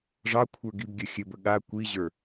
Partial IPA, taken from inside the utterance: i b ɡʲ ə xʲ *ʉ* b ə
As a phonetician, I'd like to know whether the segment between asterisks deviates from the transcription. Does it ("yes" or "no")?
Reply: yes